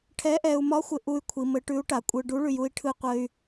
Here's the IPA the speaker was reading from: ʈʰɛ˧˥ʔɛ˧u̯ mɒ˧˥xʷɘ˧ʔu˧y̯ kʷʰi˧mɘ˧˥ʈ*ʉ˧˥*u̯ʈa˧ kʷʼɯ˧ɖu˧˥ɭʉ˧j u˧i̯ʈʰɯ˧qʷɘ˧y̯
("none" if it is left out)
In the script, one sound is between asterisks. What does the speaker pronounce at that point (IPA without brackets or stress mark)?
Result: ʉ˧˥